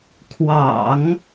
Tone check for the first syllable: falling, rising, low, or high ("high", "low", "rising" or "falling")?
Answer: low